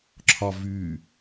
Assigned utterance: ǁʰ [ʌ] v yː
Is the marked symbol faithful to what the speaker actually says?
no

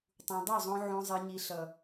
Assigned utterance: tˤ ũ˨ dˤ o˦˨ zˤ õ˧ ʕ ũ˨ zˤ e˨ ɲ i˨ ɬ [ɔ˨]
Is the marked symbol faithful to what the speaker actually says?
no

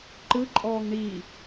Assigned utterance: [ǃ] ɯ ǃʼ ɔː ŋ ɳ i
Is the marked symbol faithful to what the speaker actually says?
yes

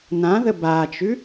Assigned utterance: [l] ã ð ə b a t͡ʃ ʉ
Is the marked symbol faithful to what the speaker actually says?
no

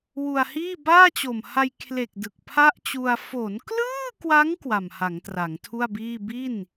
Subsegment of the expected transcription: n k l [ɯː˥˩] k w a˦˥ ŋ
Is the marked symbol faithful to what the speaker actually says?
yes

